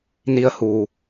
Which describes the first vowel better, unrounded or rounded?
unrounded